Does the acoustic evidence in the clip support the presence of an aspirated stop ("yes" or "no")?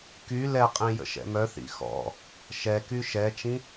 no